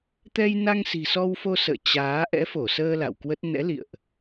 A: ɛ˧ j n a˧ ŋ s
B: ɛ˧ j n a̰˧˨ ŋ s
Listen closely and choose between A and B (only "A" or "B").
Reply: A